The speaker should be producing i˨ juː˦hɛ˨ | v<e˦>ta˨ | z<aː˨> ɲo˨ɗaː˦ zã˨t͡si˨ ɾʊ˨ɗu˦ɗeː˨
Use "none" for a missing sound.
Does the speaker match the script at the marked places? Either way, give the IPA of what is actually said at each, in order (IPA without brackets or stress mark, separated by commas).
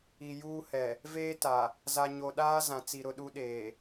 eː˦, a˨